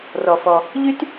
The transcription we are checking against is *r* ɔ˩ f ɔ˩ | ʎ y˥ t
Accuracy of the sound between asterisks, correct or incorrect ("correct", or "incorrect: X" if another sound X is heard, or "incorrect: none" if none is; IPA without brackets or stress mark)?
correct